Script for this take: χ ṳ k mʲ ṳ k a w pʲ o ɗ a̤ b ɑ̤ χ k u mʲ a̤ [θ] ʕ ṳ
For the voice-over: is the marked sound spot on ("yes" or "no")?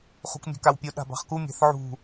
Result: yes